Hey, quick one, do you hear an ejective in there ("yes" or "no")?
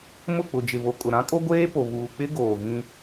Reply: yes